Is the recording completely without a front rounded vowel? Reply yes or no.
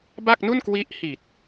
yes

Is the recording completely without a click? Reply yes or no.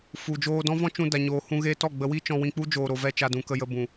yes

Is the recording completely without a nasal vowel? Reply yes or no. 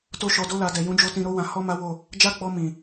no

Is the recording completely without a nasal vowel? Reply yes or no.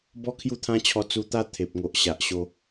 no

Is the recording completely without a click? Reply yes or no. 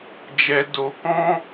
yes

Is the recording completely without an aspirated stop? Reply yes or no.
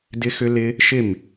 yes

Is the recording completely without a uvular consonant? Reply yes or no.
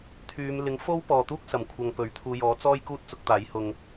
yes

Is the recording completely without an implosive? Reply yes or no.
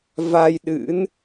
no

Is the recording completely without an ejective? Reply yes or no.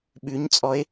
no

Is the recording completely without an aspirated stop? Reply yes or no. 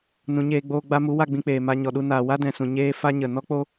yes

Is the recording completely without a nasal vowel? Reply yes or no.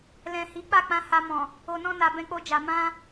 no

